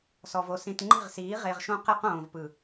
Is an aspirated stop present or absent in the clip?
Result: absent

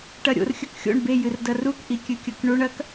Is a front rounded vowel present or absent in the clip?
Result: absent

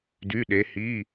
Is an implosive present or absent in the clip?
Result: present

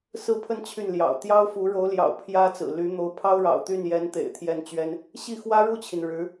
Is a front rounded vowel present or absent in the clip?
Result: present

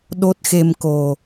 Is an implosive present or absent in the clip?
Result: present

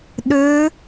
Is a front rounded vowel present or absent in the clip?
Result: present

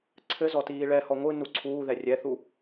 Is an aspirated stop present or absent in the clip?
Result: present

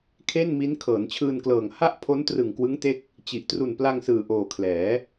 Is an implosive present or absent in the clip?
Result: absent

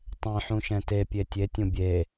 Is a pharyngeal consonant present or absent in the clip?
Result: present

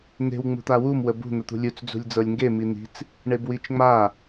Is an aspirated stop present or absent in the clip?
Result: absent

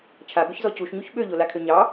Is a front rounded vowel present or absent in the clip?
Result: present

